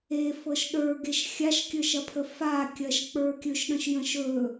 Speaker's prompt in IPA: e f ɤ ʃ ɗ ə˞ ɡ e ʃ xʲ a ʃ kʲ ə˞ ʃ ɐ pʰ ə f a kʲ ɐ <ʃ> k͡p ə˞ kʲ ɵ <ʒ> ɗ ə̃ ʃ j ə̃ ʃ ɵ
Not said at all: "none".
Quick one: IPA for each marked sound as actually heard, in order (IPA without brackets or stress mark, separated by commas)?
ʃ, ʃ